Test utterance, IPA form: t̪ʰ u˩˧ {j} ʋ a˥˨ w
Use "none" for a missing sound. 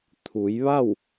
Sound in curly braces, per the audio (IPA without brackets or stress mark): j